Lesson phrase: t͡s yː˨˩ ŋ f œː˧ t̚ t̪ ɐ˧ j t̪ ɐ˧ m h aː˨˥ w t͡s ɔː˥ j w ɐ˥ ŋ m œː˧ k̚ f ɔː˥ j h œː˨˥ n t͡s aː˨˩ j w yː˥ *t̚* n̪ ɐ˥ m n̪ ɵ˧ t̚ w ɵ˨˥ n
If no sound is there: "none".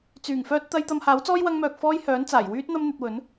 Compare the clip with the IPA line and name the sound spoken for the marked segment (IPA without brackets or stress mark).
t̚